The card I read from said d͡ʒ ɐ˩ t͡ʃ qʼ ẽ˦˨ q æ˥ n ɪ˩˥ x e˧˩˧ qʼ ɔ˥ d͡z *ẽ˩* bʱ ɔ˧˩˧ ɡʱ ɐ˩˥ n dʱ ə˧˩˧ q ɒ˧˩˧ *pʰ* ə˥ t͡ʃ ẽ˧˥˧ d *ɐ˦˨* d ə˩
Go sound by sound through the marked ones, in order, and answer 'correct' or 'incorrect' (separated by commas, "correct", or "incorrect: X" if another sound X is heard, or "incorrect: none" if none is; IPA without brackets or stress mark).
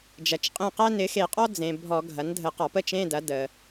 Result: correct, incorrect: p, incorrect: ɐ˩˥